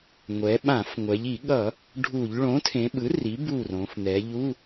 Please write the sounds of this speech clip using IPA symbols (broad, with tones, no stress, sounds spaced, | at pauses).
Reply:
ŋʷ ɛ˩˧ ɓ ã˧˩˧ f ŋʷ ɛ˩˧ ʎ i˧˩˧ ɠ ʌ˧˩˧ | ɖʱ u˧˩˧ ʎ ɭ õ˩˥ tʰ ẽ˩˧ ɓ ɯ˩˥ r i˩˥ b u˦˨ r õ˩˧ f n̪ ɛ˩˧ ʎ u˧˥˧